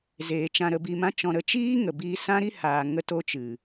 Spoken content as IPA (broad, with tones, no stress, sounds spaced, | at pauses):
z eː˨ t͡ʃ ã˧ ɾ ə˧ b i˧ m ã˦ t͡ʃ ɔ̃˧ ɾ ə˨˦ t͡ʃ iː˦ ŋ ə˨ b iː˧ s ã˦ ɾ i˦ h aː˧ ŋ ə˦ t o˦ t͡ʃ ɨ˨